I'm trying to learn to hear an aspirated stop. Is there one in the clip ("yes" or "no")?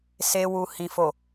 no